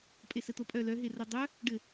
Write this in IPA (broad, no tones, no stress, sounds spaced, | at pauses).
pʼ e s ɘ t̪ o pʼ œ l œ ɦ e r o dˤ œ | ɖ ɘ